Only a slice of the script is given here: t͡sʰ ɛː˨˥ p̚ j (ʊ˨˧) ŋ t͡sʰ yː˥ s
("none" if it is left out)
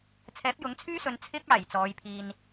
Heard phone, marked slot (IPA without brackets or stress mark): ʊ˨˥